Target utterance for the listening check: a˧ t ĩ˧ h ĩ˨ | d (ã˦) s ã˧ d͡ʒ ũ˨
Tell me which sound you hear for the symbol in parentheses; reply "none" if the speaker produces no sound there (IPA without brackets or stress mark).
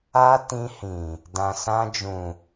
ã˨